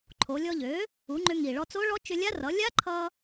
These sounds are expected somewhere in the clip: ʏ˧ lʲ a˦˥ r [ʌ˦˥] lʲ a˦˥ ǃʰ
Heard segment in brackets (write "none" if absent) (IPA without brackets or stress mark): ʌ˩˥